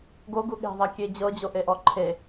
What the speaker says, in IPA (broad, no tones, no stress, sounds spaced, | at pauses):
ɡ o ɡ u ɠ e̤ ðˤ a kʲ e d͡ʑ ɤ d͡ʑ o ʔ e ʔ ɔ ǃʰ e